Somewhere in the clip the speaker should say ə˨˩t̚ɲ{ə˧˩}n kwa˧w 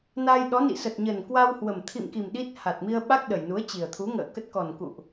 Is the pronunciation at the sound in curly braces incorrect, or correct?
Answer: incorrect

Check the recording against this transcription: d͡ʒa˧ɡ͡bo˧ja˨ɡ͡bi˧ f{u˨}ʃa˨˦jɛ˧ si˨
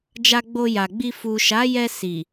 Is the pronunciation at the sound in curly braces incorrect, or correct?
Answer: correct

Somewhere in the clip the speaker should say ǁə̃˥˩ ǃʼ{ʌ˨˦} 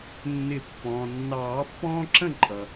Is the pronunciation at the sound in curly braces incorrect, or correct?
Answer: incorrect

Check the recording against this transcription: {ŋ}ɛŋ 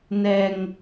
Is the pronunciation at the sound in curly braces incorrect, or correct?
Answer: incorrect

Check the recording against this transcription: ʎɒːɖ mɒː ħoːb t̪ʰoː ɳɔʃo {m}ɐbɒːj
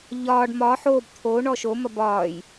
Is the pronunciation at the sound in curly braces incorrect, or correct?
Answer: correct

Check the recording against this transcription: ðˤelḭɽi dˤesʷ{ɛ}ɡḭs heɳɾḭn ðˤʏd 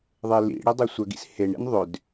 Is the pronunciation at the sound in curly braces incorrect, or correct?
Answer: incorrect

